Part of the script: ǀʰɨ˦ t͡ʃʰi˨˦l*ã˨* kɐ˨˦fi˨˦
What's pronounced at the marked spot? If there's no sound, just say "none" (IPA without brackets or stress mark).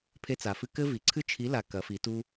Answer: a˨